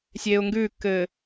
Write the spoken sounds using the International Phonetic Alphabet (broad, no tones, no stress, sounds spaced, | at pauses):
sʲ eː ʊ̯ ŋ ɡ ʉː kː ɘː